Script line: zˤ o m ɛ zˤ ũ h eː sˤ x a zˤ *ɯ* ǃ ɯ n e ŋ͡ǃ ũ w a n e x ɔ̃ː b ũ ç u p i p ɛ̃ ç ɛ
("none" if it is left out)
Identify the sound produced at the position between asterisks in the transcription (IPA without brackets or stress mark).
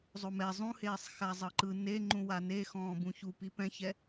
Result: ɤ